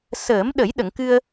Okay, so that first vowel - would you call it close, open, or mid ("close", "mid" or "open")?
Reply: mid